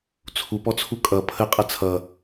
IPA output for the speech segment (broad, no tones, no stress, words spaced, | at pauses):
t͡sʰupɔt͡sʰu kʼʌ pʰəqʼɐ t͡sʰʌ